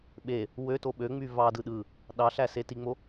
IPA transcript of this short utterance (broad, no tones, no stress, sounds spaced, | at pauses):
ɓ e | w ø t o ɓ ø ŋ͡m y v ɑ d ɯ ɗ ɯ | ɗ ɑ ɬ æ s e t i ŋ͡m o